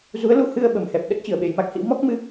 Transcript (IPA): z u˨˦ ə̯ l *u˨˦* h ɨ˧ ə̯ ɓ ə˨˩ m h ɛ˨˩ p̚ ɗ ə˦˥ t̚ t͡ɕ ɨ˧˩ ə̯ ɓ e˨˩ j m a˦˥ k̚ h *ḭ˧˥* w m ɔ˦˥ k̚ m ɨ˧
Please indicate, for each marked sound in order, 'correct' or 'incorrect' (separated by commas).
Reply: correct, correct